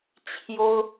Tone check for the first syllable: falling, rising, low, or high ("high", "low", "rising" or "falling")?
high